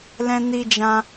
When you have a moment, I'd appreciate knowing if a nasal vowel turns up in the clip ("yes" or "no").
yes